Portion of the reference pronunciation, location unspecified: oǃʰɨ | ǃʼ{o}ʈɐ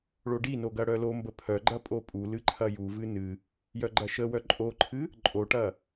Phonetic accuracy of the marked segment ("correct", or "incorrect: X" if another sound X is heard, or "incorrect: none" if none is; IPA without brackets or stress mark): correct